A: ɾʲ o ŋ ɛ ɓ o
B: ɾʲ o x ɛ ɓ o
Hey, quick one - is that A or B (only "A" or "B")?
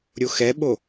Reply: B